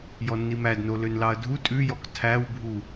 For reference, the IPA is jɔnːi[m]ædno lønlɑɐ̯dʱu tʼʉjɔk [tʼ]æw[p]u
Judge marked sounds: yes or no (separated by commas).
yes, no, no